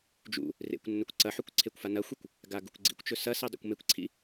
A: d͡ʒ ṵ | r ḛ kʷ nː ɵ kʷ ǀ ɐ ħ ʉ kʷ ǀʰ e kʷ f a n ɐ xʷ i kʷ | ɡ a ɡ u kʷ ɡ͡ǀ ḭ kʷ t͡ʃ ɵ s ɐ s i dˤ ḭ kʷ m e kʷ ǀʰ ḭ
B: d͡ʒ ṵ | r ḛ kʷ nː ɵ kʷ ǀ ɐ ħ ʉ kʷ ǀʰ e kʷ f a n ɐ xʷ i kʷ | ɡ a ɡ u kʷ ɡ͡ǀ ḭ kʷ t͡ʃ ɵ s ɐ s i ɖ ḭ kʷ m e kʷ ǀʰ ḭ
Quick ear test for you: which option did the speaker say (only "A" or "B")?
A